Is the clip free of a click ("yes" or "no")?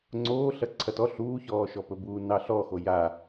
no